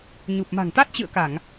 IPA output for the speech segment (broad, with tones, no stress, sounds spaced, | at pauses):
ɲ u˨˩ p̚ m a̤˨˩ ŋ t̪ a˦˥ t̚ t͡ɕ ɨ̰˧˨ ə̯ k a˧˩˨ ŋ